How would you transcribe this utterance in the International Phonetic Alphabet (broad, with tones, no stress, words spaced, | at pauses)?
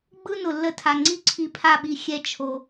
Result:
ɡ͡bɯ˦nʊ˨lːə˧tʰa˨ ŋ͡ǀi˦ǀʰi˧pʰa˦˨ɓi˧ xʲɛ˦t͡ʃʰo˧